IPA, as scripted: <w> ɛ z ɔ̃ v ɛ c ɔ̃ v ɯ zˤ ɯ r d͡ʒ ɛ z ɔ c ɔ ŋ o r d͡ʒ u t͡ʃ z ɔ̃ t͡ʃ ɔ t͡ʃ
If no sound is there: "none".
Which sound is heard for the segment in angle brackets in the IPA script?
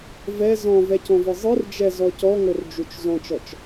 v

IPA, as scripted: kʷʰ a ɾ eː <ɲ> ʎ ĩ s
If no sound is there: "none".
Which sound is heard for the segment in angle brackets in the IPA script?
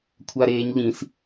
ɲ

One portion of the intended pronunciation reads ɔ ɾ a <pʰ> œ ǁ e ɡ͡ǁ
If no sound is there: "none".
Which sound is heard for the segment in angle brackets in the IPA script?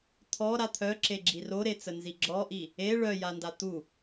t̪ʰ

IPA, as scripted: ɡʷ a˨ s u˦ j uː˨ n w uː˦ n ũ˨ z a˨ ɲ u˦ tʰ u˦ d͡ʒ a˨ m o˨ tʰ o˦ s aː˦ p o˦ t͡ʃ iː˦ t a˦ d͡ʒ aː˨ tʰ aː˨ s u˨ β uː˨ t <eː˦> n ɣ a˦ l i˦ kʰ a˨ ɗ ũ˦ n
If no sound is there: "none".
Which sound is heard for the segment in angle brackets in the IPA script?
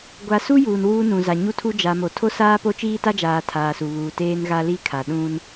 eː˦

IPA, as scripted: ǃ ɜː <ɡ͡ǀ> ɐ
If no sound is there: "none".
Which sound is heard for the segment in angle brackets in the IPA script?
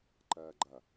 ɡ͡ǃ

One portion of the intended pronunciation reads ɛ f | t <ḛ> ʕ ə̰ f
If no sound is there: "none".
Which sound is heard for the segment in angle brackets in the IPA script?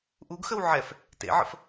ḛ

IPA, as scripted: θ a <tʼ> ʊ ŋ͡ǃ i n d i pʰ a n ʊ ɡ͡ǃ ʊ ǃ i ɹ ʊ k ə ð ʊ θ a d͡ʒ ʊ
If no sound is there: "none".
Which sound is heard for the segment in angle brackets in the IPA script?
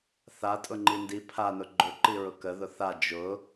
tʼ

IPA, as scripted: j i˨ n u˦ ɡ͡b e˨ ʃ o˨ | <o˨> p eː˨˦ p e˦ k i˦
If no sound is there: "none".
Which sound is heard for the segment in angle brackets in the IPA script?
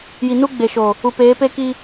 u˨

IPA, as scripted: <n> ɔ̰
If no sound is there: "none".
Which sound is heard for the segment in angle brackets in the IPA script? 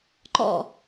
ǃ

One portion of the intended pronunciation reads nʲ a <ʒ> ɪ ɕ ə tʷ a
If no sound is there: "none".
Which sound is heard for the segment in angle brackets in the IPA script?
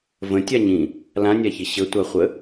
ç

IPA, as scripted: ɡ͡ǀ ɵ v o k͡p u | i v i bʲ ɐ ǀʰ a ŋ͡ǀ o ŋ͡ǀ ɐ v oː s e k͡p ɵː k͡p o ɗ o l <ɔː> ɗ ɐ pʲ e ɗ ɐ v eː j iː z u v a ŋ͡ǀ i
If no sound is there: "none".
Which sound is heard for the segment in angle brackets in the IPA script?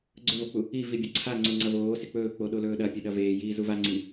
ɵː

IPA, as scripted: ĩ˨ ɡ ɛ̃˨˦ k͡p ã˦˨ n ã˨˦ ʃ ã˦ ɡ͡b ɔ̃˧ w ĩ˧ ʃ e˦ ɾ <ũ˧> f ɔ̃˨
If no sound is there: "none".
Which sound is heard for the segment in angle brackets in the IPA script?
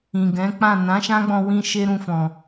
ũ˧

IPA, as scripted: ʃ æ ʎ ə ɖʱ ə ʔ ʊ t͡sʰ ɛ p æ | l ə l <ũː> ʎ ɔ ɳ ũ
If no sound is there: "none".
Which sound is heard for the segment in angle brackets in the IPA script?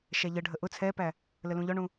ũ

